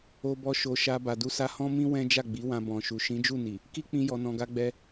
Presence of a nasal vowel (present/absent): present